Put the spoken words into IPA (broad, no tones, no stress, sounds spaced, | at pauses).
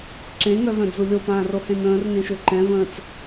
ǁ ẽ ŋ œ v œ̃ d͡z u lʲ o p ãː r o h ẽ n ə̃ː r ŋ ẽ ʃ ø ǃ ɛ̃ v ə̃ː t͡s